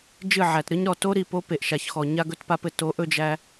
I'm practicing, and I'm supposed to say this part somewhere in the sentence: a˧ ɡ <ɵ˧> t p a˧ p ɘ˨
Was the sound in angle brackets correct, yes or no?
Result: yes